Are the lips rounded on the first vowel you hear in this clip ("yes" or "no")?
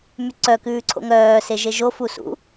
yes